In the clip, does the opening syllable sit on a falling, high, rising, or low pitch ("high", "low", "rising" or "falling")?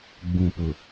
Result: low